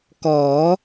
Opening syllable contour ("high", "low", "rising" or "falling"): rising